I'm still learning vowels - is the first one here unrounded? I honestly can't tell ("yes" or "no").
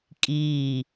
yes